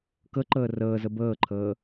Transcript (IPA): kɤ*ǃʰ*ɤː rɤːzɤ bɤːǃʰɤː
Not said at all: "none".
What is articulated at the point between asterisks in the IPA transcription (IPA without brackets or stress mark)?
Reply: ǃ